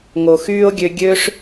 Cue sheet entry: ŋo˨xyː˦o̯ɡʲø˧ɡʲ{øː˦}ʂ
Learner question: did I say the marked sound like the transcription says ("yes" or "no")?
yes